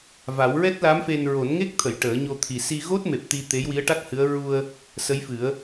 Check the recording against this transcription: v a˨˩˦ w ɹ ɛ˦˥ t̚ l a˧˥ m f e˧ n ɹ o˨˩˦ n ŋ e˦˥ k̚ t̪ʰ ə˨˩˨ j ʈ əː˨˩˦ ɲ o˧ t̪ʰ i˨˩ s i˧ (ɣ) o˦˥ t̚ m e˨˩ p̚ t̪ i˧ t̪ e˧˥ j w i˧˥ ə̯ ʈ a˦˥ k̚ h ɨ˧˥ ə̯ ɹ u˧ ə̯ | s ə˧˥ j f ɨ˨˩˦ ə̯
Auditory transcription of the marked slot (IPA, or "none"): ɣ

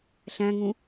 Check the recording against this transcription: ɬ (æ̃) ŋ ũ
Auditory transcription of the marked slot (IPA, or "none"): æ̃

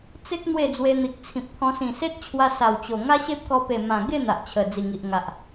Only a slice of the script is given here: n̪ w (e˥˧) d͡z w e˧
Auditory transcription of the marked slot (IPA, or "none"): e˥˧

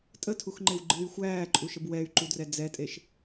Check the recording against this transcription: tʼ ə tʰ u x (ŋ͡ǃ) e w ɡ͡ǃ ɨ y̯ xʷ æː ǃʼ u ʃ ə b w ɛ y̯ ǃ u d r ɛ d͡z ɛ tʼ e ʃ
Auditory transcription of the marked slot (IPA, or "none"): ŋ͡ǃ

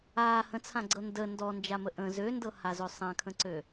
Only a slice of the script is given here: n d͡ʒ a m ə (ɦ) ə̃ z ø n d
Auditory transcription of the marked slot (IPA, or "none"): ʔ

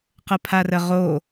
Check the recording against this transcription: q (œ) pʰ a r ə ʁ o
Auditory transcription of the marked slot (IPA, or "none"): ə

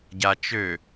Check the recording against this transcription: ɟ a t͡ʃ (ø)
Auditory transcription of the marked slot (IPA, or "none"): ø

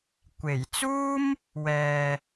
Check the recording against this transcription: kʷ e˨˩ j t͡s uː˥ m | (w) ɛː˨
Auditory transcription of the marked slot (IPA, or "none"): w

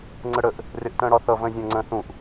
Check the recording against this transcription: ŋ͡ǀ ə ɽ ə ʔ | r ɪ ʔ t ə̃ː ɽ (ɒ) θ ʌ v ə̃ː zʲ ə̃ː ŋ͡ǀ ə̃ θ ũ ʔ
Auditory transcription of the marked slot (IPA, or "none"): ɒ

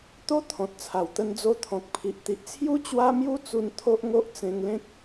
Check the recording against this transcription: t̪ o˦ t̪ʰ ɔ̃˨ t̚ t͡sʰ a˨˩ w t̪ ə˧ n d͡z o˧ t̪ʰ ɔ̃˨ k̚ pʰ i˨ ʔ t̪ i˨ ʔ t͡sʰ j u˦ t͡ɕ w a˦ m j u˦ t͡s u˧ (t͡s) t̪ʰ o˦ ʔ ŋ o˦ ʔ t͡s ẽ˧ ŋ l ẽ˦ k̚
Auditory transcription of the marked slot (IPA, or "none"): n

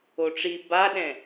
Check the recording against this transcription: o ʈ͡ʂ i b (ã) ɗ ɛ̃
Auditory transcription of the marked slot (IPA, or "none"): a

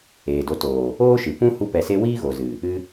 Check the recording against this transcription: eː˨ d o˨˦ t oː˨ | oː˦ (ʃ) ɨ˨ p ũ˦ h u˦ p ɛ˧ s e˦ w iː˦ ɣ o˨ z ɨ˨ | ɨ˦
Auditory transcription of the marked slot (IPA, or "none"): ʃ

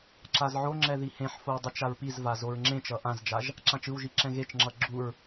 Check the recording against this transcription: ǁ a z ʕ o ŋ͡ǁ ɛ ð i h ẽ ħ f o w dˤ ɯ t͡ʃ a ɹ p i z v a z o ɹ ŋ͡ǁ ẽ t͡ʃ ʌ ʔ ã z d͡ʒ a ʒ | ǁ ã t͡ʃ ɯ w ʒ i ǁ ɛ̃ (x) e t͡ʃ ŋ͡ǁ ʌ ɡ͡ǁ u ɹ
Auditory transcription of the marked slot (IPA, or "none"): ɣ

